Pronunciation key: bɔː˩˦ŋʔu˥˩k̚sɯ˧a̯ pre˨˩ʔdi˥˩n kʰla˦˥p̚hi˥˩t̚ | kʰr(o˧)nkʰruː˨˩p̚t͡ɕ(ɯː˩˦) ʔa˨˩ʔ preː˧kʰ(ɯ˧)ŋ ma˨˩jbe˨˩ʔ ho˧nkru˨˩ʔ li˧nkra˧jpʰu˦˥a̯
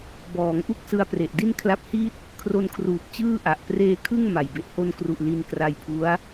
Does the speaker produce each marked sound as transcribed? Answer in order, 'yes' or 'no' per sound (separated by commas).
yes, no, no